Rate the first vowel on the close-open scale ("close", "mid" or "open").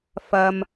open